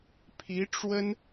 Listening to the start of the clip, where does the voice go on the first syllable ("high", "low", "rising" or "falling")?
rising